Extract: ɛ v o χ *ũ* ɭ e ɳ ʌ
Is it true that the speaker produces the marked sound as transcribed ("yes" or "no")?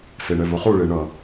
no